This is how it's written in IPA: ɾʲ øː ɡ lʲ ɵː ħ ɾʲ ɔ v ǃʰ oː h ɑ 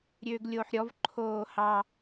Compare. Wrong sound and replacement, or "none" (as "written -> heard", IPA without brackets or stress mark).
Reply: ɵː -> oː